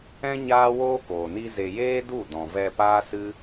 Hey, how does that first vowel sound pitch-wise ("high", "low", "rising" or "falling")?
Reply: high